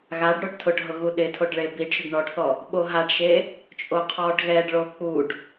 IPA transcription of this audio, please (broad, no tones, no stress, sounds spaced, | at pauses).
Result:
ɣ a ɖ ɽ o ɖ tʰ ʊ ɖ ɦ ʊ ɣ u ɗ ɪ tʰ o ɖ ɭ e b i ɖ ʃ ʊ ɖ ɳ ɔ ɖ θ ɔ | ɓ o ɦ a ɖ ʃ e | t͡ʃʼ o qʰ ɔ ɖ ɣ ɛ ɖ ɭ o k͡p u ɖ